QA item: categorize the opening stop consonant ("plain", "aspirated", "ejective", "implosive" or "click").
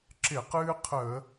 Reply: click